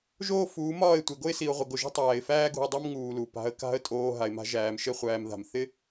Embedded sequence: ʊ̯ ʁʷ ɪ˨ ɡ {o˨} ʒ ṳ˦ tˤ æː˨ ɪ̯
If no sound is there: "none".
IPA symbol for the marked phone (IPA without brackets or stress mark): o˨